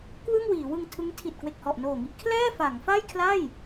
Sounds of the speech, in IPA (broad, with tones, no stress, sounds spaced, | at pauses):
k w ɯ˥˩ ŋ w iː˩˦ w ɯ˧ ŋ tʰ ɯ˦˥ ŋ tʰ i˨˩ t̚ k w e˨˩ k̚ h ɔ˨˩ ʔ n oː˨˩ ŋ i˥˩ ʔ kʰ l ɛː˥˩ f a˩˦ ŋ f a˥˩ j kʰ l a˥˩ j